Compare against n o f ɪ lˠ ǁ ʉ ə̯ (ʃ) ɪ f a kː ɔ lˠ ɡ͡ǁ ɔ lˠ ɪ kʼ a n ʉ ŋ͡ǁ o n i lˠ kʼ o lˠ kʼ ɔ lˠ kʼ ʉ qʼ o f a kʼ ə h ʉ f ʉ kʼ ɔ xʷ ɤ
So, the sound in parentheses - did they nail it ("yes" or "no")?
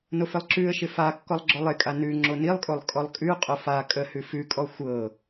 yes